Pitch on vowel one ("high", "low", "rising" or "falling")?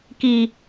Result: low